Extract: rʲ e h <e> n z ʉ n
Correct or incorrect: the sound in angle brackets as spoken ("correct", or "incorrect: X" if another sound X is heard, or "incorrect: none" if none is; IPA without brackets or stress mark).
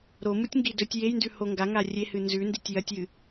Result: incorrect: ɨ